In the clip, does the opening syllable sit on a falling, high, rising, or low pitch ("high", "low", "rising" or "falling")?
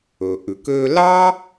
low